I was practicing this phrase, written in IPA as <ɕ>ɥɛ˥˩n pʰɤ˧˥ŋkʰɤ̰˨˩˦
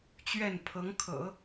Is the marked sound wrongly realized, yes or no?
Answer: yes